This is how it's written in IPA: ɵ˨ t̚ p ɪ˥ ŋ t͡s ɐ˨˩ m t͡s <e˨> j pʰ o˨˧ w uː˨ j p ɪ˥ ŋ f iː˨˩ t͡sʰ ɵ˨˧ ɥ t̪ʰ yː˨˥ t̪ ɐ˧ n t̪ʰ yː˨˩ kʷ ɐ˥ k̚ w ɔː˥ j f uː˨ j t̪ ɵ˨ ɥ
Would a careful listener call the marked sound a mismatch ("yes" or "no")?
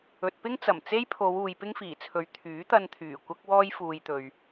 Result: yes